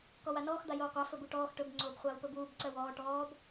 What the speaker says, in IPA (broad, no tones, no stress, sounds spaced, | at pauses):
k ɔ w a n ɔː x d̪ a j oː qʷ a f ɵ b u ʈ ɔː x ʈ ɵ b ŋ͡ǀ oː b χʷ aː w p ɵ b uː b ǀ ɜ w ɔː ʈ ɔː b